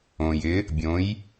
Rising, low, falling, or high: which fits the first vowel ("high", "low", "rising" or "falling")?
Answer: low